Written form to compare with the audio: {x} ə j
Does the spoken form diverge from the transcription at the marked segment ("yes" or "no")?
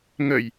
yes